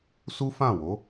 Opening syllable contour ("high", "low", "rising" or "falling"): high